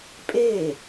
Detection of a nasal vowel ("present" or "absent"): absent